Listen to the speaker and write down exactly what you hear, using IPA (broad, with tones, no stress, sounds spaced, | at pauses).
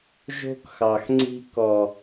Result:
ʒ o̤˦ k x ɑ˨ x ŋ͡ǀ i̤˦ k ɔ˨